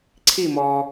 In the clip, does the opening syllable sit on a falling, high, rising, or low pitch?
falling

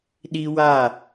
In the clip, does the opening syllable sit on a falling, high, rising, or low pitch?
high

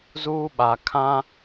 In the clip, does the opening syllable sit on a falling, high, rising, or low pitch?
high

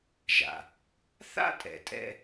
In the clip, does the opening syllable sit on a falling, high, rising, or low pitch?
low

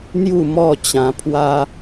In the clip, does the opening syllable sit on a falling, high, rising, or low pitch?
falling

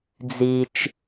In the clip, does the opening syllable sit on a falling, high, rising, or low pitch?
high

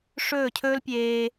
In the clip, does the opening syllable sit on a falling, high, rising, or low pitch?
falling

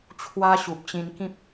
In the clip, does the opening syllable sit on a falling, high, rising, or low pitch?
high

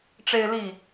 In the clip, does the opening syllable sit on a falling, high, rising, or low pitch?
high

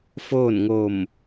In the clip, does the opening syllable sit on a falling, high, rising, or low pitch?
falling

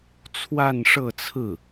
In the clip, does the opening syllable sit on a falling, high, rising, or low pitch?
falling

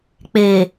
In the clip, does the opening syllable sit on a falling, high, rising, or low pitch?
low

